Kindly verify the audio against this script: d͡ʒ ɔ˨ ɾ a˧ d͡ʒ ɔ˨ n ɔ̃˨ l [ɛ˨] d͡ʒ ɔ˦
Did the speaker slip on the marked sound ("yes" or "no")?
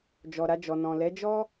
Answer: yes